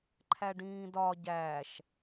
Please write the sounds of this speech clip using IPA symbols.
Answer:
ǃʰ æ ɖ ĩː d ɒ ɟ æ ʃ

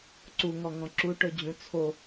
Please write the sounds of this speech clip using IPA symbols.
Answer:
ǀ u ŋ ɔ ŋ ɔ̃ ǁ u ʈ ɵ d͡ʑ ũ t͡sʰ o

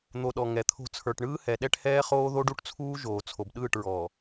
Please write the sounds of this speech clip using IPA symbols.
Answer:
n̪ o˨ ɗ ɔ˨ ŋ ɛ˨ t̪ʰ o̤˦ t͡sʰ ə˞˨ ʈ ɳ ɯː˦ h ɛ˨ ɗ ɛ˦ ʈ h ɛː˦ χ oː˦ ð o˦ ɖ u˦ ʈ t͡sʰ uː˦ ʒ oː˨ t͡sʰ o˨ b ɗ ɯː˦˨ ʈ ɹ ɔː˨

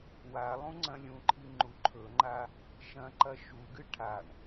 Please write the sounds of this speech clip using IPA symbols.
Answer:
w a lˠ ũ ŋ͡ǀ ɐ̃ lʲ ũ ǃʰ i ŋ͡ǃ u ǃʰ ɵ ŋ͡ǃ a | ʃ ɐ̃ ǃ ɐ ʃ u ɡ ɨ ʈʰ a ɳ

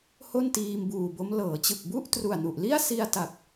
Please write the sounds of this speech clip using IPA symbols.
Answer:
h o˥˩ n t iː˧ m b uː˨˩ b o˦˥ m l ɤː˩˦ t͡ɕ ɯ˨˩ k̚ b u˥˩ ʔ t r u˨˩ a̯ n u˨˩ ʔ l i˥˩ a̯ s i˧ a̯ t a˨˩ k̚

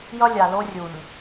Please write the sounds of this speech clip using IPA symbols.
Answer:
j ʌ˦ lʲ a˨ l o˦ rʲ u˨ ɲ

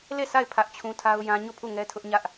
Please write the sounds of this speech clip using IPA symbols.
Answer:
l e˦˨ s a˦˨ ɪ̯ pʰ ä˦ ʔ t͡ɕʰ ũ˦ tʰ a˦ ʊ̯ j ã˦ ɲ o˦˨ pʰ u˦˨ ŋ ɛ˦ tʰ ʊ˦ ʔ ɲ ä˦ ʔ

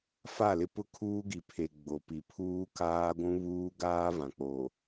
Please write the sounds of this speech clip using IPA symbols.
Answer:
f a˦˨ l ɪ˦ p ʊ˦ kʰ uː˦ ɡ i˨ pʰ e˨ ɡ͡b o˨ p i˨ pʰ uː˦ k aː˦ ɡʷ ũ˦ β uː˦ ɡ aː˦ v ã˨ k͡p o˨

